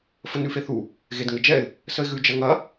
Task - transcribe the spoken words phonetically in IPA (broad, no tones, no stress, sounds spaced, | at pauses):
f ə n ʉ f e θ u | ɣ e d ŋ ɘ d͡ʒ ɛ ɪ̯ | s ə ɪ̯ ɣ ʉ d͡ʒ ɐ ŋ ɐ